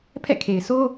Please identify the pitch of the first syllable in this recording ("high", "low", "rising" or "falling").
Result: falling